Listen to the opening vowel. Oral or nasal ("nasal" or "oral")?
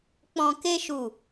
nasal